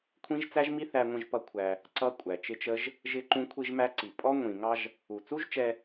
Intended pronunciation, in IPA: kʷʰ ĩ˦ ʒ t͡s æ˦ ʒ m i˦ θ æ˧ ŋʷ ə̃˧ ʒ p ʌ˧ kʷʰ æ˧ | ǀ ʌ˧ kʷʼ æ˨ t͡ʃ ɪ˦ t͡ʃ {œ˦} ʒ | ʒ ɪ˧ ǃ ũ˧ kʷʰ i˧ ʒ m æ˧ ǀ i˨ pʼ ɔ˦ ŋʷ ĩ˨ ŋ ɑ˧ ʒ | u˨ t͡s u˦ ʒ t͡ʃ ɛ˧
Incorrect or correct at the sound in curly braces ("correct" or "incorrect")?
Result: incorrect